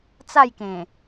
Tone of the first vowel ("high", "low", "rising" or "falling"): falling